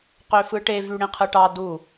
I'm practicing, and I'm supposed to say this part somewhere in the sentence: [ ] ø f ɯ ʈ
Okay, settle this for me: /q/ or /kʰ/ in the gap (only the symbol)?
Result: q